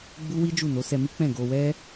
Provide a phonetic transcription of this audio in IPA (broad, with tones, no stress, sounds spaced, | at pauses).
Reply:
ɡ͡b u˦ w i˦ d͡ʒ u˦˨ n o˨˦ s ɛ˧ m i˦ k͡p ɛ̃˦˨ ɡ o˧ w ɛ˦